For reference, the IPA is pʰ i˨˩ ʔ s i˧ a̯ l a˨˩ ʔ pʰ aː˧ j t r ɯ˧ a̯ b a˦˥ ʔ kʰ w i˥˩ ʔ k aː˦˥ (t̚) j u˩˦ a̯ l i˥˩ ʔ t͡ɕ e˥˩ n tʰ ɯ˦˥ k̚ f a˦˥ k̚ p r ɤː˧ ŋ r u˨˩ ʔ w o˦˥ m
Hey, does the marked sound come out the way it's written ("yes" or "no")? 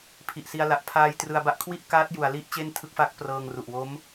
yes